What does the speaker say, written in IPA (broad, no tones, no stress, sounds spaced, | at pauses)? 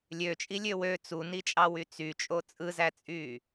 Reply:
lʲ ø t͡ʃʼ i lʲ ø w ø t͡s u n i t͡ʃʼ ɑ w y t͡s y t͡ʃʼ o t͡sʼ ɯ z æ t͡sʼ y